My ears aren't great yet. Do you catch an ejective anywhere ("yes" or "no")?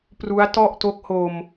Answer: no